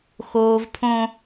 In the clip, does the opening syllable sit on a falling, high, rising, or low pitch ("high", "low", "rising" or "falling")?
high